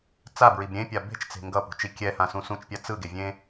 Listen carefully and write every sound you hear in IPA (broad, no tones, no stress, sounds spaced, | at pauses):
t͡s a b ɹ i b ɾʲ ẽ pʲ a b e̤ t͡ʃ t͡s e̤ ŋ ɡ ʌ p ṳ t͡ʃ i kʲ ɛ h ã s ũ s ũ t͡ʃ pʲ a t͡s ɯ ɡ e vʲ ẽ